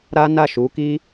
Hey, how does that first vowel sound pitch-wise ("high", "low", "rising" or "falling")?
high